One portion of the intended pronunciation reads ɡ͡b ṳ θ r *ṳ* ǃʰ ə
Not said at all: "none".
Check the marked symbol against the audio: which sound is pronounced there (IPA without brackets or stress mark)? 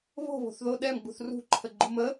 ṳ